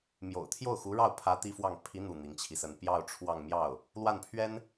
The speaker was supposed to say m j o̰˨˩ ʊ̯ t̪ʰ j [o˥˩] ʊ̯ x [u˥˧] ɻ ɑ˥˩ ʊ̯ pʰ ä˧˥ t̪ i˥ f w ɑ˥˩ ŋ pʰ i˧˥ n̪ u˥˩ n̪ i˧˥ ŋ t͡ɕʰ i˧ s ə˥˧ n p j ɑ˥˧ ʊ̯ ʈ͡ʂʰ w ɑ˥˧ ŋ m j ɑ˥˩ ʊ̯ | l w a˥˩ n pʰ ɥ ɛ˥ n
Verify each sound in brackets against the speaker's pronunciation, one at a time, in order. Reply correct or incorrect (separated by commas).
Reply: correct, incorrect